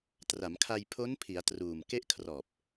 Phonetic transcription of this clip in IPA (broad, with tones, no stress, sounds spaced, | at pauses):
t r a˩˦ m kʰ a˧ j pʰ o˦˥ n pʰ i˩˦ a̯ t r uː˨˩ m k e˦˥ ʔ kʰ r ɔː˨˩ p̚